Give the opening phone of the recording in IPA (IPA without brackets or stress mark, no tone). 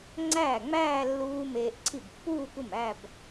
ŋ͡ǀ